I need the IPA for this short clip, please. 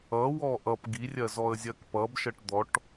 ʌ w ɔ ʔ ʌ p ɡ i rʲ ɜ z ɔ ə̯ zʲ ɜ k p ʌ b ʃ ɜ ʈ d̪ ɔ ʈ

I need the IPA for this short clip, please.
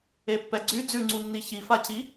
e pː ɛ ɡ͡ǀ y d͡z ʉ ŋ͡ǀ u nː i ç i f a c i

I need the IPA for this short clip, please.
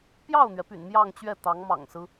p j ɑ˥˩ ʊ̯ n̪ ɥ ɛ˩ p y̰˨˩ n m j ɑ˥˧ ŋ t͡ɕ ɥ ɛ˥˩ t̪ ɑ˧˥ ŋ m ɑ̰˨˩ ŋ s ɹ̩˦

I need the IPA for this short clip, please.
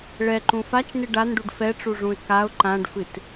ɭ ɛ ǃ ũ f a t͡ʃ n ɨ ɖ a n ɖ u ɖ f ɛ ʈ͡ʂ u ʐ ũ ɪ̯ k a ʊ̯ ǃ ã ɖ f ɨ t

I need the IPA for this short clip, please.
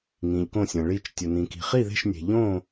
ŋ ĩ˨ ʎ k õ˥˨ sʲ ɐ̃˨ ɭ i˥˨ t͡ʃ tʲ ɵ˨ n ĩ˨ k i̤˨ χ i˥˨ ð e̤˥˨ ʃ nʲ e̤˨ ʎ õ˥˨

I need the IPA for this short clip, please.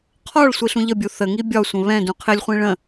qʰ ɒ ɭ sʷ i ɬ ũ ʎ ə bʲ u θ ə ŋ i bʲ ɒ sʷ ə̃ β ɛ̃ d ũ qʰ ɪ lʲ χʷ ĩ ɭ ə̃

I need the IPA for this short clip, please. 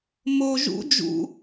m o ʒ ṵ d͡ʒ ṵ

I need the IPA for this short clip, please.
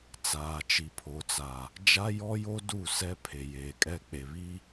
t͡s aː˨ t͡ʃ i˨ pʰ o˨ t͡s a˨ | d͡ʒ a˦ j ɔ˦ j o˦ d u˦˨ s ɛ˦ pʰ e˨ j eː˨ kʼ ɛ˦ k͡p e˨ β i˦

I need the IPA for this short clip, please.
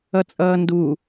ʌ t͡sʼ ʌː n d u

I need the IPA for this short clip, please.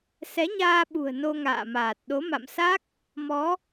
s ɛ˨˦ ɲ aː˧ ɓ ṳ˨˩ ə̯ n o˧ ŋ a̰ː˧˨ m aː˨˩ t̚ ɗ o˨˦ m a̰˧˨ m s a˦˥ k̚ | m ɔ˨˦

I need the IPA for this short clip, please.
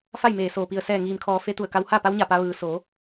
f a˥˨ j m eː˧˩ s oː˧˩ p i˧˩ ə̯ s ɛː˧˩ ŋ iː˩ m kʰ ɔː˩˧ f e˧˥ t̪ u˧˩ ə̯ k a˧ w h a˥˨ p a˧˥ w ɲ a˧˩ p a˧ ʋ ɯː˩ s o˩˧

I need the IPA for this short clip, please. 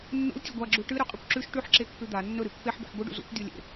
nː ṵ l tʲ ɨ ɡʷ a ɡ͡ǁ u ʈ ɨ ɾ ɵ qʼ ɨ kʷ ǁ ʉ ʃ ʈ ʉ ħ ǁ e kː ʉ d̪ a nː ɵ ɾ ɨ pː e ħ b ḛ ħ ɡʷ ɨ ɖ ṵ z ṵ kʷ dʲ o lʲ ḛ

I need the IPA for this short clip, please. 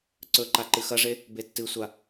ǀ ɵ ǃ a ǃ ɨ x ɐ ʐ e | b e tː ɨ sʷ a

